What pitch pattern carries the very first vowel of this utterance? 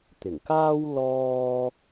low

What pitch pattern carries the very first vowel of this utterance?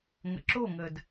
low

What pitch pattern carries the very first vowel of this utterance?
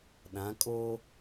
rising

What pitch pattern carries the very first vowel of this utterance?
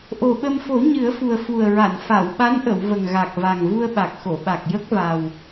low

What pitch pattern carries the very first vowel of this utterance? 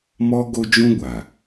high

